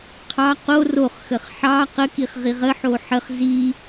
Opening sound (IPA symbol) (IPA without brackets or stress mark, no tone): qʰ